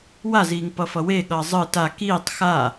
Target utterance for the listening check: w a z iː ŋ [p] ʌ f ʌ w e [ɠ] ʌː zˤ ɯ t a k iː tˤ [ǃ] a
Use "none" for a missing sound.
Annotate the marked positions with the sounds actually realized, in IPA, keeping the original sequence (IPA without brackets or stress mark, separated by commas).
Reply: p, ɠ, x